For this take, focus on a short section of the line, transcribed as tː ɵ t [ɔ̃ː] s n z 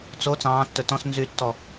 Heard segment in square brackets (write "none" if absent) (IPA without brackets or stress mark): ɔ̃